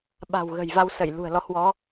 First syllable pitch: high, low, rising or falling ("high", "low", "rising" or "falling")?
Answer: low